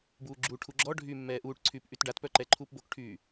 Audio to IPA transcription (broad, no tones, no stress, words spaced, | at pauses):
buːɡ͡ǁuʈʰu ɡ͡ǁɔ ɖʱyːmːɛːʔuːʈǀʰyːp ʔytɖatpœ ǃɛǃʰuːpbokʈʰyː